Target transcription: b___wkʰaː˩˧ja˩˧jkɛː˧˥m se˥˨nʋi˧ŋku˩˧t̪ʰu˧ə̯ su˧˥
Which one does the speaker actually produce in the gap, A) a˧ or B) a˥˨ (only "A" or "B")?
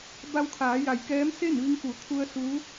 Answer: A